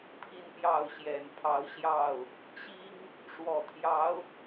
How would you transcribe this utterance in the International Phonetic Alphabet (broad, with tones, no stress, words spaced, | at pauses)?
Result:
pʰi˥˧npjɑ˥˩ʊ̯ɕjɛ˨˩npʰɑ˧˥ʊ̯ ɕjɑ˥˩ʊ̯ | t͡ɕi˥ŋ | ʂwɔ˨˩t̪ʰjɑ˧˥ʊ̯